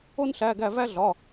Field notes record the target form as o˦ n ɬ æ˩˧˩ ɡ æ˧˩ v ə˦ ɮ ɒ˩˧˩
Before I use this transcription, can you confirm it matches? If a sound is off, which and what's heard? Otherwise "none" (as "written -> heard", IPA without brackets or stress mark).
ə˦ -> æ˦